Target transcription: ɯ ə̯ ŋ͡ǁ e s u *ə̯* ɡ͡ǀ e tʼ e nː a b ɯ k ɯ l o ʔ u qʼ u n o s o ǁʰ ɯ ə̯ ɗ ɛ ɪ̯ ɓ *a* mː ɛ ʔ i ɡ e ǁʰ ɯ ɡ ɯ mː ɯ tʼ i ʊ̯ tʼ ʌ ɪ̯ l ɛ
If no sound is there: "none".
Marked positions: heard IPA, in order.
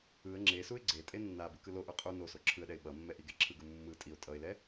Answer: ɪ̯, ʌ

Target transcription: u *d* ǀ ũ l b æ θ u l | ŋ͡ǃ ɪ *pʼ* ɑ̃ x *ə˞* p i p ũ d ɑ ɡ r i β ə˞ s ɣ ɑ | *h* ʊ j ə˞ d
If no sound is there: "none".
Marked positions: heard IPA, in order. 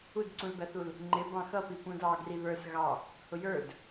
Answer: d, b, ʌ, h

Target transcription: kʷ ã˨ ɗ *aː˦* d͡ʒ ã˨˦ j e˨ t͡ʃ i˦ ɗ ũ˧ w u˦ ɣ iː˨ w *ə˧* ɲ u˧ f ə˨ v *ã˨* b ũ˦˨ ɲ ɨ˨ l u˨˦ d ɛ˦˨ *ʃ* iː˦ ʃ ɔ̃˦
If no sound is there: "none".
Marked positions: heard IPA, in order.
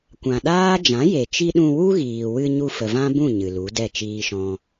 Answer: aː˦, ɨ˧, ã˦, t͡ʃ

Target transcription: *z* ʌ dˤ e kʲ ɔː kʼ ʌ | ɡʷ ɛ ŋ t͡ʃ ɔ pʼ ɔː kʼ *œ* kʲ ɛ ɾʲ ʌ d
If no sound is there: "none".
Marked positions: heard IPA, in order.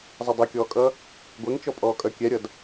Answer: zˤ, œ

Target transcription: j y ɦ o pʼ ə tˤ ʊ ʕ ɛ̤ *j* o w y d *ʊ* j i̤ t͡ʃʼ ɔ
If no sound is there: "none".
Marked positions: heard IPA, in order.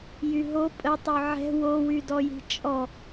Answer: w, ɔ

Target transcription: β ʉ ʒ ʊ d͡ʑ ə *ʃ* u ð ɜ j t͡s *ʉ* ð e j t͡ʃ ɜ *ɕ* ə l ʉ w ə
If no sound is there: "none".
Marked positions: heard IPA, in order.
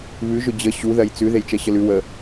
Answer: ɕ, ʉ, ɕ

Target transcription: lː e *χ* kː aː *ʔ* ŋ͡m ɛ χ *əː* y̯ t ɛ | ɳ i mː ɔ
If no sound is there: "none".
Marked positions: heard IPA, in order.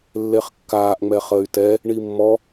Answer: χ, ʔ, əː

